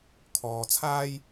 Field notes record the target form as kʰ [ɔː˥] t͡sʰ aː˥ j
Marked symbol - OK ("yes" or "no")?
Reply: no